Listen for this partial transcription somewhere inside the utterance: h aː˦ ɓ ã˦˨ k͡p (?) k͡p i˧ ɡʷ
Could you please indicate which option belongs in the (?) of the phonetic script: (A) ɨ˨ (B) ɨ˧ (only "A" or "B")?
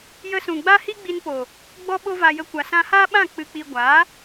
B